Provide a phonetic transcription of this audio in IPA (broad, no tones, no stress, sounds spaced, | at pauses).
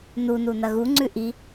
n u n u n ɐ ɣ u ŋ͡ǀ ʉ ʔ i